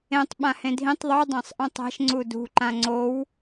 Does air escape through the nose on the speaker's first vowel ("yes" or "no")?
yes